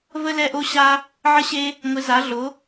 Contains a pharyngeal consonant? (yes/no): yes